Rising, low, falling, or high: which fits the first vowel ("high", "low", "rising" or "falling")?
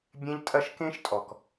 high